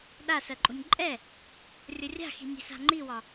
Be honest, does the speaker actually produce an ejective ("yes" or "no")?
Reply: yes